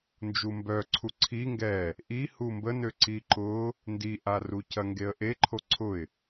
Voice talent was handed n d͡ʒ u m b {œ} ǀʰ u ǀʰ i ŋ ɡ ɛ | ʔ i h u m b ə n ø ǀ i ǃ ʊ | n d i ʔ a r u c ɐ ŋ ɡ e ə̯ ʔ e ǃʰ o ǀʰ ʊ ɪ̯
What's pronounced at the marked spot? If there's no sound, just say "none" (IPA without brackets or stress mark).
œ